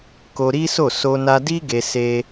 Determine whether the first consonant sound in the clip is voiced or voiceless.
voiceless